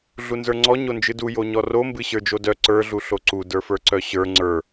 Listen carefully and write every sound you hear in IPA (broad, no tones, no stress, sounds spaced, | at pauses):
ɮ u n z ə˞ ŋ͡ǀ ɔ ɲ o n d͡ʒ ɨ d u j o ɲ ɔ r o m b ɨ ɕ ə˞ d͡ʒ o d œ ǀ ə˞ ɮ u ɬ o ǀ u d ə˞ f ə˞ ǀ œ ɕ ə˞ ŋ͡ǀ ə˞